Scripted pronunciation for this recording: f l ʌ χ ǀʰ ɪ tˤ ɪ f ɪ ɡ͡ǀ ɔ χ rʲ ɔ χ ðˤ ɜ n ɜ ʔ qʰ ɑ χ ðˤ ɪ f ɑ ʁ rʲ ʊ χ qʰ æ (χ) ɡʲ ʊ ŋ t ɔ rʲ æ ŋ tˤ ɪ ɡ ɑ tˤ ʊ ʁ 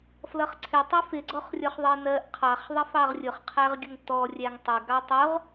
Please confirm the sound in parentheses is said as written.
no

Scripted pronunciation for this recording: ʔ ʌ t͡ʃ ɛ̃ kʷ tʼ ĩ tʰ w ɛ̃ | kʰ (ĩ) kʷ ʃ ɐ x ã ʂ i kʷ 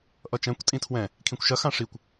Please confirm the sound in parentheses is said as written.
yes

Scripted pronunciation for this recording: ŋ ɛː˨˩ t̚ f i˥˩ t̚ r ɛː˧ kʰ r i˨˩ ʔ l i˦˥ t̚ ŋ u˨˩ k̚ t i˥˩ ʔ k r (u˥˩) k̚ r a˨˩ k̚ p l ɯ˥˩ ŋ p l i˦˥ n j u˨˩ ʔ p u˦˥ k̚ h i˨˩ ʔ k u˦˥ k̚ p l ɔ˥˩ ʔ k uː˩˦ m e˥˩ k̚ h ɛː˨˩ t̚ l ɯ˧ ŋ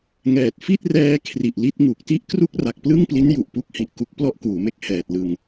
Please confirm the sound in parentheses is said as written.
yes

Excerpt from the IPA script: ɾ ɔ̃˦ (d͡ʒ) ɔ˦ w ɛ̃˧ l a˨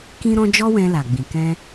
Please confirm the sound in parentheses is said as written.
yes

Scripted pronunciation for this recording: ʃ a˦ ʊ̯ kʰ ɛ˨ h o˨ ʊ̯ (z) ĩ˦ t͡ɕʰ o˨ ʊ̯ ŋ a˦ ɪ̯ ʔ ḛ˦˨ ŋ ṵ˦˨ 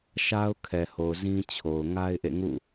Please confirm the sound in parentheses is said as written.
yes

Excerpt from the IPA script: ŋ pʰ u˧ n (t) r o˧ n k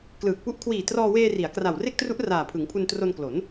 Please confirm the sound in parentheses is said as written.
yes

